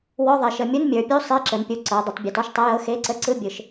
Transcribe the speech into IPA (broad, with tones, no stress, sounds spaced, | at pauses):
w ɔ˧˥˧ ðˤ e˩˧ ʃ ə˩˧ mʲ u˧˥˧ n mʲ ə˞˩˧ pʲ u˧˥˧ sˤ e˧˥˧ ǁ ə˩˧ n pʲ u˩˧ ǀ ɤ˩˧ dˤ ə˩˧ tˤ bʲ ɤ˩˧ t ɔ˧˥˧ ʃ tˤ ɤ˧˥˧ j ɤ˧˥˧ x e˧˥˧ ǀ ə˧˥˧ ǀ ɯ˧˥˧ bʲ ɯ˩˧ ʃ